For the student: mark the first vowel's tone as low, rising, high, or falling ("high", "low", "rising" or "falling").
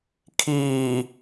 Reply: low